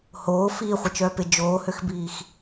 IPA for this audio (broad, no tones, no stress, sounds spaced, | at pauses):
h oː f iː χʷ ə t͡ʃ œː p e d͡ʒ oː h ø x b iː x